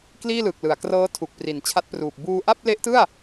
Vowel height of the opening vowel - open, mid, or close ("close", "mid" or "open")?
close